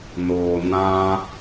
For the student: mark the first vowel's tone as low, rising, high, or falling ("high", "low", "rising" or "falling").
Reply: low